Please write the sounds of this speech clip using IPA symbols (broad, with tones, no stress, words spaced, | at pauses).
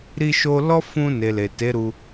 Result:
ɾi˧ʃo˧ lɔ˦fũ˧ne˨ le˨te˨˦ ɾu˧